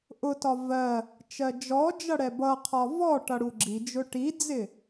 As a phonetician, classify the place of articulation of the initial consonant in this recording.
glottal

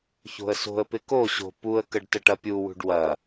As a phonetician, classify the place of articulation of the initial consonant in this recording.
palatal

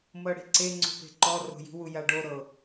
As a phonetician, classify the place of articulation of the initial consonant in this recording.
labial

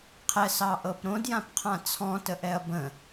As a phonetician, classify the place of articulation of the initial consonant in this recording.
uvular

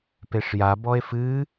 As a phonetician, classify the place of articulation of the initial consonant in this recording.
labial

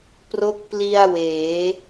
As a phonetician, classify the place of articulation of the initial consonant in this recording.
labial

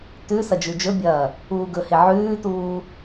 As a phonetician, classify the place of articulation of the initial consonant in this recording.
alveolar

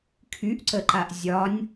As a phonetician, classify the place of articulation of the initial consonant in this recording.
velar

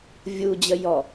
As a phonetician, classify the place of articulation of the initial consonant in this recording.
labial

